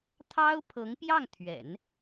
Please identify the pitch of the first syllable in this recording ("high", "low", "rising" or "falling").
high